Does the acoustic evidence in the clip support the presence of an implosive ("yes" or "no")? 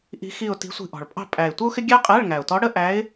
no